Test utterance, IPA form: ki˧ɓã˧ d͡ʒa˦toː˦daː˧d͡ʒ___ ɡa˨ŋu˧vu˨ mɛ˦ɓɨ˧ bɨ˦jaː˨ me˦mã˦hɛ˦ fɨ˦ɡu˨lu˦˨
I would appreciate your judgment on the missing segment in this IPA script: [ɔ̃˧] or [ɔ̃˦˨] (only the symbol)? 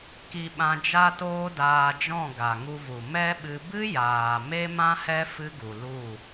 ɔ̃˦˨